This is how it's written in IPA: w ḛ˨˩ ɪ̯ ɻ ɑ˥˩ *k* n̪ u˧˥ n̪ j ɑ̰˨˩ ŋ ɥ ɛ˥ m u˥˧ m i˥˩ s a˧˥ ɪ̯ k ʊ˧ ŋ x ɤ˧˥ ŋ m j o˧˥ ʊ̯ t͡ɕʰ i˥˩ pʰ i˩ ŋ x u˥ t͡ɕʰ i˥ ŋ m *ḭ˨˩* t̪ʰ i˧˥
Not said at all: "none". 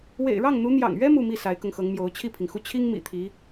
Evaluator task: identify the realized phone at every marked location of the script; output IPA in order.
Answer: ŋ, ḭ˨˩

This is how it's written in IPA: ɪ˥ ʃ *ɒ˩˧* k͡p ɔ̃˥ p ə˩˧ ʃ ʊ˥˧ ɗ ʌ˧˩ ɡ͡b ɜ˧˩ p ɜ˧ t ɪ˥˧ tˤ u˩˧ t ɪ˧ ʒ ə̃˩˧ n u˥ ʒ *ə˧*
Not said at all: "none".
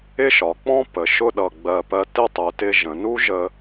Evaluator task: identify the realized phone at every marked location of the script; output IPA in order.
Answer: ɒ˩˧, ə˧

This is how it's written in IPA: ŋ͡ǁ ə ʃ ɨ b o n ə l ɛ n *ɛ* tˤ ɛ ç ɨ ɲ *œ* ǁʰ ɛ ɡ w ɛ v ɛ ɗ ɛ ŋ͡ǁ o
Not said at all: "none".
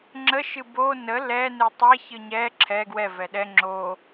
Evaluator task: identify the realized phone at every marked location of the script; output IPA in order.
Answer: ɨ, ɛ

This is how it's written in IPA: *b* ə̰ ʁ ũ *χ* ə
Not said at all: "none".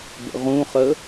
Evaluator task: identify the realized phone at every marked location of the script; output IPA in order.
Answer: b, χ

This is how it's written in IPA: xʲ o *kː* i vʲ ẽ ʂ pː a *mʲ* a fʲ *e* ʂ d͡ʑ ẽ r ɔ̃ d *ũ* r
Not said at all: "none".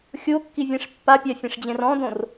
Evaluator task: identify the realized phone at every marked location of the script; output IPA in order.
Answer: kː, pʲ, ẽ, õ

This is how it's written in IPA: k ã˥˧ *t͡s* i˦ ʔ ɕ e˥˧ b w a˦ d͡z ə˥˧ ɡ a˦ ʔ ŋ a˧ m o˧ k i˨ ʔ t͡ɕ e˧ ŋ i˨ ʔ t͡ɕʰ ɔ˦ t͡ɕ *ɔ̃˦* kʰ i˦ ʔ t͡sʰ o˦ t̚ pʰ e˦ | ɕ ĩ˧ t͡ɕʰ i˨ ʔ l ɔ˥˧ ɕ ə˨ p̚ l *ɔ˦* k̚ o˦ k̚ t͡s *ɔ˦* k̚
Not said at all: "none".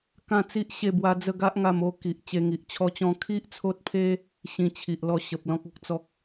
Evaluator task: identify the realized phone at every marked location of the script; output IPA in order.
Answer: t͡s, ɔ̃˦, ɔ̃˦, ɔ˦

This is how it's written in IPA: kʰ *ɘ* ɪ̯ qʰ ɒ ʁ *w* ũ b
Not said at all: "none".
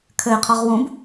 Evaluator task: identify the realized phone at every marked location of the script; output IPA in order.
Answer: ɘ, w

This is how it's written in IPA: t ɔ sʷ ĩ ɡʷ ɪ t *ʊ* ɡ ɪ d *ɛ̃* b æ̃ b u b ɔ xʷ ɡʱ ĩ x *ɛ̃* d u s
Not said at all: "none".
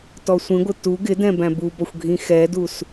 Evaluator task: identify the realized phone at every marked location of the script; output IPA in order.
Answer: u, ɛ̃, ɛ

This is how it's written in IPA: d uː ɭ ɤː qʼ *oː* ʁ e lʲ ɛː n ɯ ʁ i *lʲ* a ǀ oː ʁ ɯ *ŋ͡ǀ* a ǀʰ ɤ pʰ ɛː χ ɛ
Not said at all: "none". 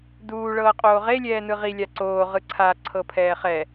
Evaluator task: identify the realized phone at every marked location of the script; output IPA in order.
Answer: oː, lʲ, ǀʰ

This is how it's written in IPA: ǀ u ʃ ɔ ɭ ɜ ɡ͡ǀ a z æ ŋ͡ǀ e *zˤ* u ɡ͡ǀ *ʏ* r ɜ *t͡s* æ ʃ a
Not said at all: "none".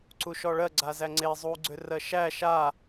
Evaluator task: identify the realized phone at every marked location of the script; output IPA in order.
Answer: zˤ, ʏ, ʃ

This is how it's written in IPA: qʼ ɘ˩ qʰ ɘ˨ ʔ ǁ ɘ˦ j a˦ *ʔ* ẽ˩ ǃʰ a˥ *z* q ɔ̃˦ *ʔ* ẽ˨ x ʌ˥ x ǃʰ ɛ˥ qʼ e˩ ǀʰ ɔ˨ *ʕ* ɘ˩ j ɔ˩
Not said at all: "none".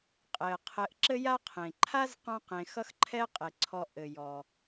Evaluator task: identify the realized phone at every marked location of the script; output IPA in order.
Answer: qʰ, z, q, ʔ

